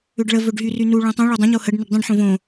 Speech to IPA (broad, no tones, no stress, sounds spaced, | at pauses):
ʏ ɖ ɭ ə v ɵ ɖ ɦ y r y n u ɭ ũ tˤ ũ ɭ ɵ dˤ ə̃ ɲ o h ə ɖ n ʏ ɖ dˤ ə̃ ɖ ħ õ v õ